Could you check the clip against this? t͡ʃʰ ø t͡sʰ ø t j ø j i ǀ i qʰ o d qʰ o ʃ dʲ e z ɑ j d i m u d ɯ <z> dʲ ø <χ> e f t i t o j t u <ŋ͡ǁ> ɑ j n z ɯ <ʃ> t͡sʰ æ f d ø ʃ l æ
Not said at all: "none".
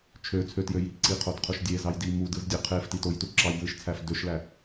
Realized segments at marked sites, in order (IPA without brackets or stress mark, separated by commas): z, qʰ, ǁ, ʃ